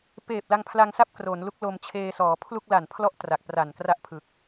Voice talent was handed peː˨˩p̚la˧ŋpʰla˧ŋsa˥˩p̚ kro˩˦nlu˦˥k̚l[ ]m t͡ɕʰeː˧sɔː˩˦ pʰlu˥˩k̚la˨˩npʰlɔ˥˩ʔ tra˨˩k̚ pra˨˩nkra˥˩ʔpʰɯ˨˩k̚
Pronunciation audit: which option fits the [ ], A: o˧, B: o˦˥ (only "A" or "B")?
A